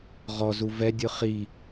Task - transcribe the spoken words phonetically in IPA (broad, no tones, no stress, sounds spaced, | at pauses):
ʁ ɔ z u v ɛ dʲ ɯ χ i